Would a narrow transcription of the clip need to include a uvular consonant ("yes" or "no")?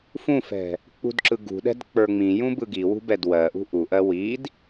no